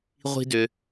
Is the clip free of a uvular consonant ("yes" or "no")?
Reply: no